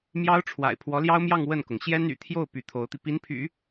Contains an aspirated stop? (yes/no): yes